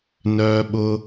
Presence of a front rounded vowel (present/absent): present